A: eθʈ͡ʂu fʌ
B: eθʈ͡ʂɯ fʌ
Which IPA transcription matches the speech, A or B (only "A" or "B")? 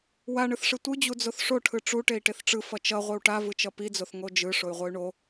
B